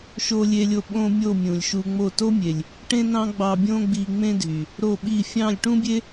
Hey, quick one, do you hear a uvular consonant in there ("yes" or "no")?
no